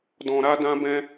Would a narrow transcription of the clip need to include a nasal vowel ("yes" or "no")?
yes